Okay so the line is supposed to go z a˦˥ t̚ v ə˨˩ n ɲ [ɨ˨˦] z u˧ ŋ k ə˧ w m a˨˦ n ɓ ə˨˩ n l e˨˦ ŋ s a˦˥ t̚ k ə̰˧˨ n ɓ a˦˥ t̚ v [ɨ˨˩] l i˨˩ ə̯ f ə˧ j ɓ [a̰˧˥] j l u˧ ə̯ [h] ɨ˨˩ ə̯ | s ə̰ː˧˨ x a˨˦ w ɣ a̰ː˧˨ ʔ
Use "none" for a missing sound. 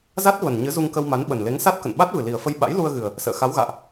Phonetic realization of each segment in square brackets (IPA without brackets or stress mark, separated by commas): ɨ˨˦, ɨ˨˩, a̰˧˥, ɣ